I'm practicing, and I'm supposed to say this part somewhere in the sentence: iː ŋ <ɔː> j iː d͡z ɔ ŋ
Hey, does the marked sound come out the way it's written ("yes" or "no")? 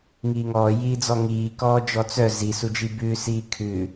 yes